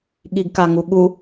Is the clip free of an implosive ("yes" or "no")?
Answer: no